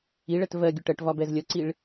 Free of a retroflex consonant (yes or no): no